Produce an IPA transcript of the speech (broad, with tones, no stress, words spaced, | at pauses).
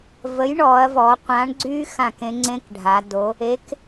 və˨˥jɳɔ˩˧ɐ̯vɔ˩˧ qʷã˨˥ɳɡ͡ǀy˥ xã˥˩kẽ˥ ŋ͡ǀẽ˥kɖʱa˩˧do˨˥ | e˨˥k